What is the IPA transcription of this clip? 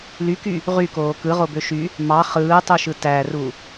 l y k y | ʁ y k oː k ɯ ʁ o b ø ʃ y | m ɑ χ ɯː tˤ u ʃ ɯ t æ r u

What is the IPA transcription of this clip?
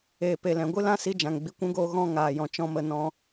eː˨ p e˨ l ɛ̃˨ ɡʷ ɨ˦ l ã˦ s i˧ d͡ʒ ã˨ ŋ ɡ͡b i˧ kʷ ũ˦ ɡ oː˧ ɣ ɔ̃˦ ŋ aː˨ j ɔ̃˨ t͡ʃ ɔ̃˦ m ə˧ n ɔ̃˧

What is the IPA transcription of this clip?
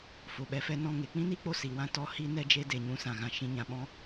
f o˨ ɓ ɛ˧ f ɛ˧ n ɔ̃˦˨ ŋ e˨ k͡p ĩ˦ n i˦ k͡p o˧ s i˨ w ã˧ t ɔ˧ h i˦ n ɛ˦ d͡ʒ e˦ d e˨ ɲ ũ˧ s ã˨ ɣ ã˨ ʃ ĩ˧ ɲ ã˨ ɓ ɔ̃˧

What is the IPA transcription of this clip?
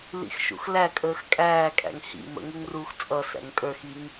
l ḭ x ʃ ṵ x l æ kʼ əː x kʼ æː kʼ æ̰ ŋ h ḭ m ə̰ ŋ u ŋ r uː x t͡sʼ ʌ s æ̰ ŋ kʼ ə˞ x i ŋ

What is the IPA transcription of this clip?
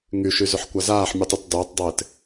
ŋ y ʃ y z ʏ ħ kʷ a z aː ħ mʲ u tˤ ʊ t dˤ ɪː tˤ dˤ ɪː t

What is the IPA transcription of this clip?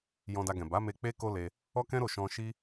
j ɔ̃˧ d a˧ ɡ ɛ̃˨ b a˨˦ m e˧ k͡p e˦ k o˦ l e˧ | ɔ˦ k ɛ̃˦ ɾ o˦˨ ʃ ɔ̃˧ ʃ i˦

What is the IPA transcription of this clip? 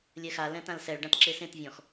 lʲ ɛ x a l ɛ̃ t ã l s ɛ ɭ ɖ ã t ǁ e s ẽ t vʲ ɔ̃ x

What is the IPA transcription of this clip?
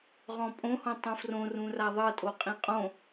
ʁ ɔ̃ pʼ õ h õ tˤ ũ f r õ r ũ r a ðˤ ɤ tʼ o qʼ ĩ qʼ õ

